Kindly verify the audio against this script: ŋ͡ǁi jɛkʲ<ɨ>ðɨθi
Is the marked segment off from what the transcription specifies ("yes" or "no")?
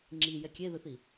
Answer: yes